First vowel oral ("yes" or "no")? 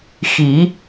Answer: yes